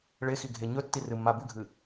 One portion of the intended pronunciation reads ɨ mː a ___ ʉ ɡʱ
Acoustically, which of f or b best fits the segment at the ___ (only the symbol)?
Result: b